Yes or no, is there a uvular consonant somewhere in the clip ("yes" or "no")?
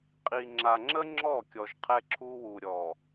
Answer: yes